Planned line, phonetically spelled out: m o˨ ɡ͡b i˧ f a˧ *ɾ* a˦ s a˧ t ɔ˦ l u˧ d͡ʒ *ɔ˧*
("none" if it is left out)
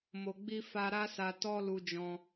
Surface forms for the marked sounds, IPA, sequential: ɾ, ɔ̃˧

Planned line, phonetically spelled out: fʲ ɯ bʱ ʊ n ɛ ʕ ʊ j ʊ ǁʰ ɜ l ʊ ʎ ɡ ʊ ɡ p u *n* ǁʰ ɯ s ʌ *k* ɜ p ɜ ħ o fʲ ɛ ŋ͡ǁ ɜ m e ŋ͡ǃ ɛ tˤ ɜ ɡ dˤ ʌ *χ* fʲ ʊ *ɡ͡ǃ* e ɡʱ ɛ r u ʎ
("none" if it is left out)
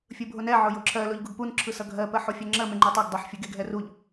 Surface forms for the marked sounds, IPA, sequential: n, ɡʱ, ħ, ɡ

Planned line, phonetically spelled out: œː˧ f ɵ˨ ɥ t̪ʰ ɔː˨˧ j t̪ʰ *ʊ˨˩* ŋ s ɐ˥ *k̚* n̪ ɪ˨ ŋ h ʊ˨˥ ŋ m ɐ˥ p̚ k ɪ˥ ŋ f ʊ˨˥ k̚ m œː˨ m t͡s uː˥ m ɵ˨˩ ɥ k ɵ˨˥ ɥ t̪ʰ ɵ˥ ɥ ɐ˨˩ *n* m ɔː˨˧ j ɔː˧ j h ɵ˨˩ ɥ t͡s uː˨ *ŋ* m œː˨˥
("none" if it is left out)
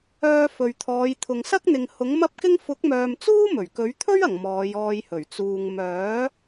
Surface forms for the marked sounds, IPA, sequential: ʊ˨, k̚, ŋ, ŋ

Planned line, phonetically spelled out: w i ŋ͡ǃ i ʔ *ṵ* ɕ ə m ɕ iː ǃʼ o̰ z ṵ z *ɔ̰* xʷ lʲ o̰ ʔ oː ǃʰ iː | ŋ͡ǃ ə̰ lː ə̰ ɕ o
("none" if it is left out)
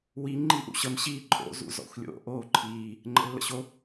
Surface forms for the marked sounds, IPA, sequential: ṵ, ɔ̰

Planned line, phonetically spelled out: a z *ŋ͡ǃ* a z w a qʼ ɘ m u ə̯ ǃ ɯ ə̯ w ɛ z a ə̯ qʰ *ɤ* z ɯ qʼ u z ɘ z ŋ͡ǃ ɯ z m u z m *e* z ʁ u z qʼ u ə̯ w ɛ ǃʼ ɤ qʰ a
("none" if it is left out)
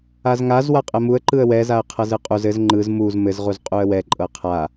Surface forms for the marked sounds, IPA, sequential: ŋ, ɤ, ɘ

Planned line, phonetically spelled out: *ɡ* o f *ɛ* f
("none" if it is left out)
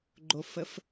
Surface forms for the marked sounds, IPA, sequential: ɡ͡ǃ, ə

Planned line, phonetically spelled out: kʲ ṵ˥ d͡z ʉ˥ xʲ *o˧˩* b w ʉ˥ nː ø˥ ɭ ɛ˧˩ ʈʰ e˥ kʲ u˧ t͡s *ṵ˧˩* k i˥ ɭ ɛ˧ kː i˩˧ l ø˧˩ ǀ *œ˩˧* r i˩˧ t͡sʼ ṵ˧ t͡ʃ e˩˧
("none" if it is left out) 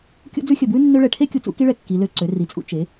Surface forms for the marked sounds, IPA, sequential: ɵ˧˩, ṵ˥˧, ø˩˧

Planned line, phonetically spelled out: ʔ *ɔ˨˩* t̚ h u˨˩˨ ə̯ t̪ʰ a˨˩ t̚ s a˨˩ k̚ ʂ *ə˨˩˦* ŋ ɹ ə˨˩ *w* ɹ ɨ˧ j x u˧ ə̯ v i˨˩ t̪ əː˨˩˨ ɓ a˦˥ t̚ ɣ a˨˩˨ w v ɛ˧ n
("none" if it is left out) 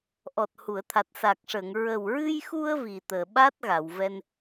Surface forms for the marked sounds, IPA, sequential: ɔ˨˩, ə˨˩˨, w

